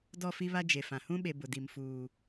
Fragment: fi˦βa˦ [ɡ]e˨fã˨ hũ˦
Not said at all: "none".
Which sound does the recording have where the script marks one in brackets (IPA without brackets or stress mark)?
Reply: d͡ʒ